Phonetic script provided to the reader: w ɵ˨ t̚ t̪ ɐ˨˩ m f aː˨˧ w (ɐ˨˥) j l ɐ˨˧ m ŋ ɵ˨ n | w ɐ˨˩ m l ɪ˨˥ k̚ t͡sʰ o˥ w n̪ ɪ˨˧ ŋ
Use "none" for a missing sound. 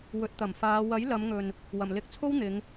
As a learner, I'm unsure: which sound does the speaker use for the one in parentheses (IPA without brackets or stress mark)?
ɐ˨˥